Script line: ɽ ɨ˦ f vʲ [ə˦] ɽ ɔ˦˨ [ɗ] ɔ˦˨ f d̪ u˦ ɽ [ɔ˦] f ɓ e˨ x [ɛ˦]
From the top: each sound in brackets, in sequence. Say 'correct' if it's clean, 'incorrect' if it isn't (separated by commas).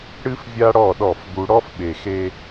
incorrect, correct, correct, incorrect